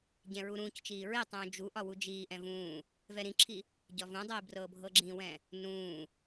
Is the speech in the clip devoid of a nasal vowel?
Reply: no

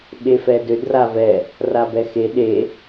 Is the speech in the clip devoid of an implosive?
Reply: no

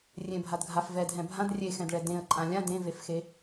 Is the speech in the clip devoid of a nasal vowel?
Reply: no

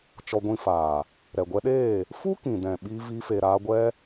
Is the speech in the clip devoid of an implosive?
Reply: no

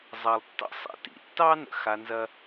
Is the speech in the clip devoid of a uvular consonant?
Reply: yes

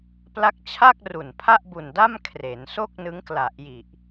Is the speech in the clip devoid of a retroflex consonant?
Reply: yes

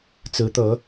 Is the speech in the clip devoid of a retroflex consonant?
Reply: yes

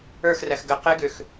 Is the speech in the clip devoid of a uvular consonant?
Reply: no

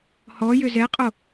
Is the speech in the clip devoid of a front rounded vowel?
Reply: no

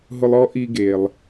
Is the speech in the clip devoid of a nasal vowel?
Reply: yes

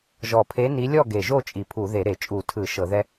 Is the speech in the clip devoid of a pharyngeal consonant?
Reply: yes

